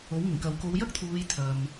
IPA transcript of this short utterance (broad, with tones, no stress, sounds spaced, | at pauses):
o˨˥ w ŋ ɪ˨˩ ŋ k ɐ˨ w k o˨˧ w j ɐ˥ k̚ t̪ʰ uː˨˧ j t̪ʰ ɐ˨ m